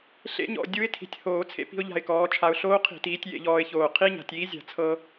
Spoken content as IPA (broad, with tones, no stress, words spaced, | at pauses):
ɬḛ˦˥ɲɔ̰˨˩ dʲu˦˥ɪ̯tʰi̤˨˩tʲ hoː˧˩˧t͡sʰḛ˧ pi̤˧ʊ̯ʎa̤˨˩ɪ̯kɔː˩˧ t͡ʃʰa˨˩ʊ̯ɬoː˦˥qʰi̤˧˩˧tiː˩˧tʲ jḛ˧ʎɔː˧ɪ̯çoː˨˩ qʰi˦˥ɲa̤˩˧tʲiː˨˥zʲa̤˧˩˧ t͡sʰɤ˧